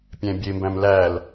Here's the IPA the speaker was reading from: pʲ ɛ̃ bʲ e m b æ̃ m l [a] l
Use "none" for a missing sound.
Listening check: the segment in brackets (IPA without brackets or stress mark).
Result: æ